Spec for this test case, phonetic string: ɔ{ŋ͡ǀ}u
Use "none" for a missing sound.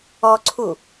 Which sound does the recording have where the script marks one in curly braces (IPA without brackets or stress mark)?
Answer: ǀʰ